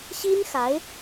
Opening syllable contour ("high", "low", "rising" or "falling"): high